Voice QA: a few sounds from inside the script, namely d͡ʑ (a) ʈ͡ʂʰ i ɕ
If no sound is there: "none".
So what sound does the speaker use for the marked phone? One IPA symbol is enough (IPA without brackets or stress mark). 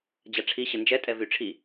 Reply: a